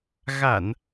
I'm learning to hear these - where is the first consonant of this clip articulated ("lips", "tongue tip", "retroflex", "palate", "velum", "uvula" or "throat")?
velum